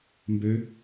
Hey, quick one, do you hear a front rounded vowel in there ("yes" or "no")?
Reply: yes